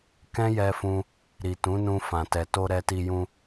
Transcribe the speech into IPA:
kɛ̃˦jɛ˧fũ˧ | ɾi˨tũ˨˦nũ˧ fã˨tɛ˨to˧ ɾɛ˧ti˧jũ˧

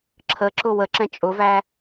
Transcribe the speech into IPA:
ǁʰəǁʊ wəǁɛ̃ t͡ʃʼʊvæ

